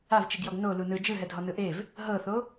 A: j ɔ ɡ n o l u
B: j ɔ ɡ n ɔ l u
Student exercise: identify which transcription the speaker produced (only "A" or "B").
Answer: A